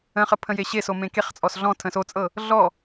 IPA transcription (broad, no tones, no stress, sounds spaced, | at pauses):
ə̃ χ ə pʰ ə̃ j e ɕ e s o m ẽ k e χ t͡sʼ ɔ s ɮ ɔ̃ tʰ ə̃ s o t͡sʼ ɤ | ɮ ɔ